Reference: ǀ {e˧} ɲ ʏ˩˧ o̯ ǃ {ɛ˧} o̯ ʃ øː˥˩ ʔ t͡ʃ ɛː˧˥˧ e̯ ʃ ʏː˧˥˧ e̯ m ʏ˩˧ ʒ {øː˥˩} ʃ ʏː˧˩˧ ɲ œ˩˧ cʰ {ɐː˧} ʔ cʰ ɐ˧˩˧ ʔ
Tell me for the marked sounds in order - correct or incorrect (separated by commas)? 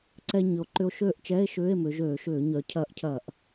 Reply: incorrect, incorrect, incorrect, correct